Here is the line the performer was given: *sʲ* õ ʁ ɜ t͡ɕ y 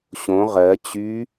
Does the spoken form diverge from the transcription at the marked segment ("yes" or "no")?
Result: yes